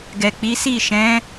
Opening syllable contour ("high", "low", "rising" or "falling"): low